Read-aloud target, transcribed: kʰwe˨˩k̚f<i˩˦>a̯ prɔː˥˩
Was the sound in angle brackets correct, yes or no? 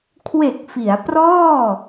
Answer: yes